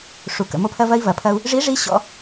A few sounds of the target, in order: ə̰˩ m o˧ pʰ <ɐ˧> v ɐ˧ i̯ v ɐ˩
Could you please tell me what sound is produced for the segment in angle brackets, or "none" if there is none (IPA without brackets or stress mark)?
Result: ɐ˧